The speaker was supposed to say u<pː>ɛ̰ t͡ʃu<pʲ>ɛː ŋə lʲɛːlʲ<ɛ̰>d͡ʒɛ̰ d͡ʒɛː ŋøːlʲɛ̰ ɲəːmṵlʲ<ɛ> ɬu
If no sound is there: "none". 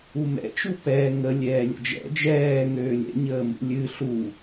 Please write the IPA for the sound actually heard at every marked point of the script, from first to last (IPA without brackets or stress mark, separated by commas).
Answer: m, p, ə̰, ɨ